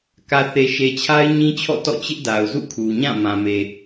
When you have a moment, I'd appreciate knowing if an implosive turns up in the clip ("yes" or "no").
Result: no